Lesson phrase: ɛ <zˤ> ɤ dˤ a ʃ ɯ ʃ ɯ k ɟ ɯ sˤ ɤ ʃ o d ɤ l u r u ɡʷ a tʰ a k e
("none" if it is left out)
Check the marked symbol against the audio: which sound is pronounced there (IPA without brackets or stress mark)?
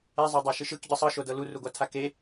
zˤ